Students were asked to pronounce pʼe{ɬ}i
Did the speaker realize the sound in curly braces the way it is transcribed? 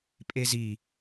no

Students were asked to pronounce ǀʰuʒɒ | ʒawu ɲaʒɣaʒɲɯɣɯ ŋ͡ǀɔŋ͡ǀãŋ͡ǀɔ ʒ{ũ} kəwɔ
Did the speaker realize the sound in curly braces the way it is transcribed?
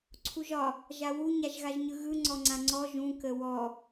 yes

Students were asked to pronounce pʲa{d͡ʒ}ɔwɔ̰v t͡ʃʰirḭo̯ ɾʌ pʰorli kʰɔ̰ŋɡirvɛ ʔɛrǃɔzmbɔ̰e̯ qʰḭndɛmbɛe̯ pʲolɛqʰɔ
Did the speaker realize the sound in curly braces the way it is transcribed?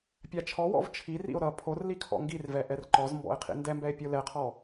no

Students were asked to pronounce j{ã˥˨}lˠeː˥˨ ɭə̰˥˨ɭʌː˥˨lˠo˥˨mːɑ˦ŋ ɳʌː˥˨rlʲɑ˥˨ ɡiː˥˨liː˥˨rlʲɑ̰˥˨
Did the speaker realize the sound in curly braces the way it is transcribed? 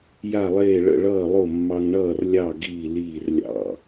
no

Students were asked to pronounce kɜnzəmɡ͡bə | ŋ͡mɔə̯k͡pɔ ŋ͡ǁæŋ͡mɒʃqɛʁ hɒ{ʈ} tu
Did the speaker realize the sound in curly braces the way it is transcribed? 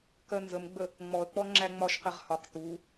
no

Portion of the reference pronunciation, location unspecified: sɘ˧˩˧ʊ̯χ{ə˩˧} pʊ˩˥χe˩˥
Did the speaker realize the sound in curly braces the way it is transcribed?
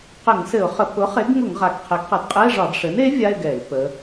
no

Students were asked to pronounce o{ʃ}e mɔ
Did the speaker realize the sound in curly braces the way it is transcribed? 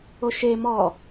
yes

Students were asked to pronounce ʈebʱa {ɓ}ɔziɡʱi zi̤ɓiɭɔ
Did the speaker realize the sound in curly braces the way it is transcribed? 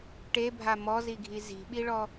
no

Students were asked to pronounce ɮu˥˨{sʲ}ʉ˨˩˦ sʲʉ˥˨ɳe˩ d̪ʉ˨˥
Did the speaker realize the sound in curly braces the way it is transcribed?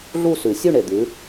no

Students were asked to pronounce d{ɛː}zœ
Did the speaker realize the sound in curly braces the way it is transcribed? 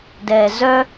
yes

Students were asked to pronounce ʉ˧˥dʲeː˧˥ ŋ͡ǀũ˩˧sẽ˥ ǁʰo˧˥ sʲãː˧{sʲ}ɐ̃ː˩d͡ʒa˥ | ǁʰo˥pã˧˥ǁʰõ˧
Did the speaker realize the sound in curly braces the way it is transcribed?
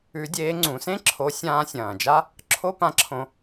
yes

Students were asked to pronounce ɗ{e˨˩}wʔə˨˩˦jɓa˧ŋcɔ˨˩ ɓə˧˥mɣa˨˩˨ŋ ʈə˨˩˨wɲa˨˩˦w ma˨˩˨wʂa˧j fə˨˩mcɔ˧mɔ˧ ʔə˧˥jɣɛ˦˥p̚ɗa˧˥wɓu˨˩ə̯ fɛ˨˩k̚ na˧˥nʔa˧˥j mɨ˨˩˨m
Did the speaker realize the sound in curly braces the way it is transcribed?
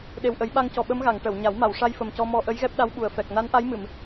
yes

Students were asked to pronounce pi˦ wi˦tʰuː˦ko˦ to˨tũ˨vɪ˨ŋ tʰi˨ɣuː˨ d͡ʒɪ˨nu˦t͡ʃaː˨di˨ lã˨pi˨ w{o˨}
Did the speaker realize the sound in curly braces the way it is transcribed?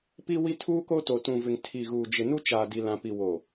yes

